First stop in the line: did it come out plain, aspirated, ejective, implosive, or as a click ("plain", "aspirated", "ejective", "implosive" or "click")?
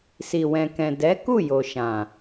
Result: plain